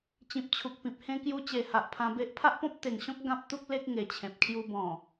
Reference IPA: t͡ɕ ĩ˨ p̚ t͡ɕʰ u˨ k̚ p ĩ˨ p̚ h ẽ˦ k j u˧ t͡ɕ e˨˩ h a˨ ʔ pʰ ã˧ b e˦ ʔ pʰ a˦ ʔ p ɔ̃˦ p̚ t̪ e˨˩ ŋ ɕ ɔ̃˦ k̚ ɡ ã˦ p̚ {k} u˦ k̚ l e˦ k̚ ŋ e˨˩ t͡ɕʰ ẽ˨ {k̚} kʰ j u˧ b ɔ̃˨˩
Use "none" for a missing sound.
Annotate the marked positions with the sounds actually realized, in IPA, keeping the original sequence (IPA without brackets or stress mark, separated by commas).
t̪, p̚